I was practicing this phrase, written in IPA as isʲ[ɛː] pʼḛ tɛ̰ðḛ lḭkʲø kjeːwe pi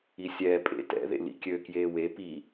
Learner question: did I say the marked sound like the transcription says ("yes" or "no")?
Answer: yes